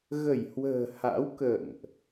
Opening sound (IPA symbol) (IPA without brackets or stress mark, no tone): ɣ